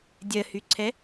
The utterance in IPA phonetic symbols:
dʲ ɜ h y ǀʰ ɛ

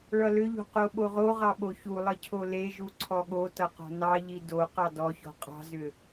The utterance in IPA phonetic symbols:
ɭ ʌ l ʏ ʎ o̤ q o ɓ o ʁ o ʁ ɑ ɓ o ç u lˠ ʌ cʰ o l e ʒ u ǀʰ ɔ ɠ o t ʌ q ɔ̤ n ɑ ʎ i d o q ɑ d ɔ ç ɔ̤ qʼ ɑ̤ z ʏ

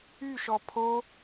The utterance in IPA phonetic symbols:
y ʃ ɔ pʰ o

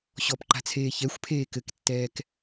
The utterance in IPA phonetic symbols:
ɕ ɔ p ǃ a̤ t͡sʰ eː ç ɛ xʷ pʰ eː k ɘ k tː ɛː k

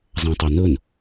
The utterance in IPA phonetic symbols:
zˤ ã tˤ o n ɵ n

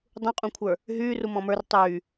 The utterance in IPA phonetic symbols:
dˤ ũ qʼ ũ kʷʰ ə˞ | ɦ yː r u m ɔ̃ m ə˞ r tˤ yː

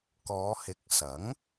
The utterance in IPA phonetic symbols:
k ɔː˨˧ h ɪ˨˥ k̚ s ɐ˨˥ ŋ

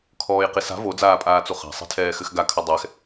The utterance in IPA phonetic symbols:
kʰ ɔː j q i s a̤ v o d͡z aː pʼ aː t͡s u χ a̤ sˤ e̤ tʰ ɛː x ɘ x ɡ a kʰ ɐ dˤ ɛ x

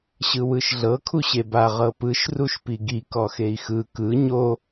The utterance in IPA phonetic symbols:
ɕ ɯ w ɯ ʃ ɮ ɤ kʰ u ɕ e b a ʁ ɤ p ɯ ʃ r u ʃ p i ɡ i k ɔ x e i̯ x ɯ k ɯ ɲ o

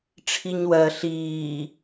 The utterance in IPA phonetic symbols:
ʈ͡ʂʰ i ɲ w ɜ ɬ iː

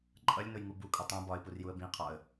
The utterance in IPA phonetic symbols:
ǃʼ ʌ lʲ n ʊ j ŋ u b u kʼ u tˤ ũ b ɒ ɪ̯ p u r j u ə̯ b ĩ qʰ ɒ ə̯

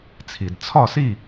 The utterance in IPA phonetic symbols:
t͡sʰ i˩ d t͡sʰ ɒ˥˨ s i˥˨

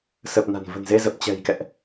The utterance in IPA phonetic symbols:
s ə˨˩ p̚ n a̤˨˩ n v ə̤˨˩ n z e˧ z ə˨˩ p̚ t͡ɕ ɛ̤˨˩ j k ɛ̰˧˨ ʔ

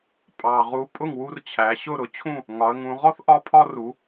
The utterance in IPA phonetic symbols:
pʼ ɑ˨˩ ʁ u˨˥ pʼ ʊ˥˩ ŋ w u˦ r t͡ɕʰ æ˩˧ ɕ ʊ˥˩ ɾ ʊ˨˥ t͡ɕʰ ũ˥˩ | ŋ ɒ˩˧ ə̯ ŋ ũ˩˧ ʁ ɔ˦ θ ʔ ɒ˦ pʰ ɒ˦ r u˩˧

